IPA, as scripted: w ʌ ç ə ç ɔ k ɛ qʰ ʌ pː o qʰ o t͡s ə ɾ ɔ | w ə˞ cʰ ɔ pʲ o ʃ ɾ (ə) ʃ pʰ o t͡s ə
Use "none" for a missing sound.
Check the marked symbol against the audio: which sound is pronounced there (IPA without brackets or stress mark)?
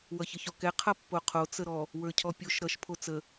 ʌ